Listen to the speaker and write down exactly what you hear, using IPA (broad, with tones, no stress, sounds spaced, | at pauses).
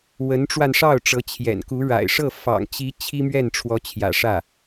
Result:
w ə˧˥ n ʈ͡ʂ w a˧ n ʂ ɑ˥˩ ʊ̯ ʈ͡ʂ ɤ˧˥ t͡ɕʰ j ɛ̰˨˩ n k u˧˥ ɻ a̰˨˩ ɪ̯ ʂ ɤ˥˩ f ɑ̰˨˩ ŋ t͡ɕ i˧˥ t͡ɕʰ i˥ m ɥ ɛ˥˩ n ʈ͡ʂʰ w ɔ˧˥ t͡ɕʰ j ä̰˨˩ ʂ ä˥˩